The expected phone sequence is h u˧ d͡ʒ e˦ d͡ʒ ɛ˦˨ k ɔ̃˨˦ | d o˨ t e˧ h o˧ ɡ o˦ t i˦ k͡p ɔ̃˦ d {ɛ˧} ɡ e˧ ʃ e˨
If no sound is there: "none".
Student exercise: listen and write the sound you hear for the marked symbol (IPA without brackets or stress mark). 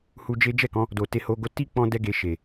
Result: ɛ˦